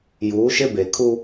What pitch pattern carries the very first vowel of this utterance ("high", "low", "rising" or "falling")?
rising